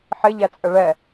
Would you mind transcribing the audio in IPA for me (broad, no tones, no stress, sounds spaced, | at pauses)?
ħ ɪ ʎ æ t͡sʼ ə ɭ ɛ